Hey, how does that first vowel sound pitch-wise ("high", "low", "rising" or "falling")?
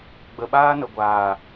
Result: low